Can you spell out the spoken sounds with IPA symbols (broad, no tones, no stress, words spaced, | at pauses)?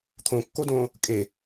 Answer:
t̪ʰõkːodõː | kʼe